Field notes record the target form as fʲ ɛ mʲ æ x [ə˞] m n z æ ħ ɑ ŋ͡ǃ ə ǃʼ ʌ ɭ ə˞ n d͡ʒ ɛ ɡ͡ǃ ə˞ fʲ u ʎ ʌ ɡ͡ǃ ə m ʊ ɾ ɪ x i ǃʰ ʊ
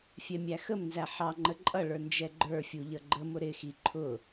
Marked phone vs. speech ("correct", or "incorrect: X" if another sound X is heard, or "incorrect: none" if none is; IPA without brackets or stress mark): incorrect: ə